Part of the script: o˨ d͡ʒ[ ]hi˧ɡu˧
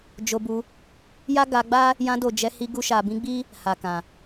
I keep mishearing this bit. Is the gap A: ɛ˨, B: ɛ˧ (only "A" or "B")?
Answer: B